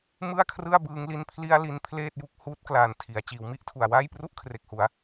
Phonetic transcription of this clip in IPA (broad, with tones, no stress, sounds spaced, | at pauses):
m ɯ˥˩ a̯ kʰ r ɯ˥˩ a̯ b ɯː˧ ŋ l i˧ n pʰ l i˧ a̯ l i˧ n pʰ l eː˥˩ t̚ j u˦˥ k̚ h uː˦˥ t̚ k l aː˨˩ n tʰ i˩˦ a̯ t͡ɕ iː˩˦ w m i˥˩ ʔ tʰ u˨˩ a̯ w aː˥˩ j p r u˥˩ ʔ kʰ r e˨˩ k̚ h u˩˦ a̯